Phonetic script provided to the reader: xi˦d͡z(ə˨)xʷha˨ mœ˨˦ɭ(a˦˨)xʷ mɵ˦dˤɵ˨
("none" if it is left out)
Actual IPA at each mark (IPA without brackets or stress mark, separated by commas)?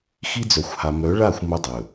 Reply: œ˨, a˦˨